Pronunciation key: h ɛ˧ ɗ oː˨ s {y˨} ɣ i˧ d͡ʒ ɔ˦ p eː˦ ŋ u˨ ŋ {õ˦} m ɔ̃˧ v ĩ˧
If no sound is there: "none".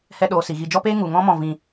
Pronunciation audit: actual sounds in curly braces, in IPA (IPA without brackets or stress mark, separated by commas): i˨, ɔ̃˦